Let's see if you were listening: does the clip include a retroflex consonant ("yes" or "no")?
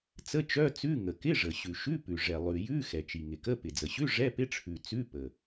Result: yes